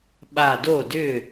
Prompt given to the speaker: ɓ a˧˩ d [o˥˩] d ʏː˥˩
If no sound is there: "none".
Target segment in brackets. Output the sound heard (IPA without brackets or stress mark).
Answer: o˥˩